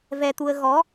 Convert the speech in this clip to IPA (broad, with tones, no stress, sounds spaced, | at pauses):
v ɛ˧ t̪ u˧ ə̯ ɣ ɔ˨˦